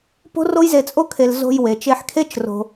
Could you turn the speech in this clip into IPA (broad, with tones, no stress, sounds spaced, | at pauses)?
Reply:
p o̤˥ r o˥ j z e˧ t͡sʼ o˥ kʰ e˧ l z o̤˧ j w e˩ t͡ʃ e˧ ħ kʰ e˥ t͡ʃ r o̤˧